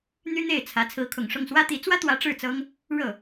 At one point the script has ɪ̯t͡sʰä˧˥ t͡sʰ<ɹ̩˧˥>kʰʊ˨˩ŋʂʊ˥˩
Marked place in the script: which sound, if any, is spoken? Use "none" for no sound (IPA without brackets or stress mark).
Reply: ɹ̩˧˥